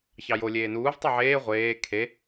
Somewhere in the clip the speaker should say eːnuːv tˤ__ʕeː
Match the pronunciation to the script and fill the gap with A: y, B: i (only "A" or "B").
A